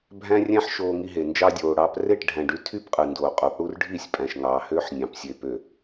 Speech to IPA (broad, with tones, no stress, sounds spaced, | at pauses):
bʱ æ̃˦ rʲ æ̃˦ ħ ʃ oː˨ ŋ i˨ ɦ e˨ n d͡ʒ ɑ˦ dʲ oː˨ ɽ ɑː˦ p r e˦˨ ʈ ɖʱ æ̃˨ ɖ y˦ tʰ y˦ p qʼ ɯ˨ n d oː˨ qʼ o˨˦ p ɽ u˦ r ɖʱ i˦˨ sʲ pʼ æ̃˨ ʃ ŋ ɑː˨ h øː˦ ħ nʲ ɑ̃˨ p sʲ e˨ p ø˨